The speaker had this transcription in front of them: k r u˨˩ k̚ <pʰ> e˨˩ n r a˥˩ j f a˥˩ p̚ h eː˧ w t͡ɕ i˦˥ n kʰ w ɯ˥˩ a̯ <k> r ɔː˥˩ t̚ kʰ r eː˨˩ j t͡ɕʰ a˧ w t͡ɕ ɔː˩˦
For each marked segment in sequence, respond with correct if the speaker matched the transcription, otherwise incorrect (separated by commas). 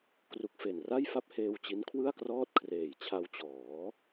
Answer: incorrect, correct